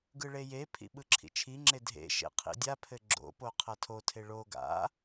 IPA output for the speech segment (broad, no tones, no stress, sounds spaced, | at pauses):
ɡ ɯ ɭ e j e pʰ ḭ ɓ ɯ ǁʰ ḭ t͡ʃʰ i ŋ͡ǁ e dʱ ḛ ʃ ḛ qʰ ḭ dʲ a pʰ ɘ ɡ͡ǁ o̰ p o qʰ ɐ tʰ o tʰ e ɭ o ɡ a̰